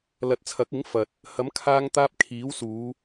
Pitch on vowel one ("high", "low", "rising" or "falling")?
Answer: low